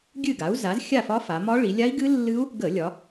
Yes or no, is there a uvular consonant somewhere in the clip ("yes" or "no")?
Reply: no